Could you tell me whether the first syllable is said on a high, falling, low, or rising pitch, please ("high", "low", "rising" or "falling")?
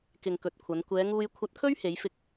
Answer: low